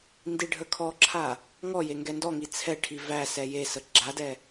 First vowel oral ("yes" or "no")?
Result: yes